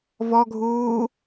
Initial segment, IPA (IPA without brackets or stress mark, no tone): v